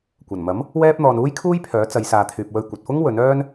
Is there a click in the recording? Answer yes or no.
no